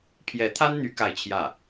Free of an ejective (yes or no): yes